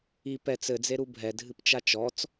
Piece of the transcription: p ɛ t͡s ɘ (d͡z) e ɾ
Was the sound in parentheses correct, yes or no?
yes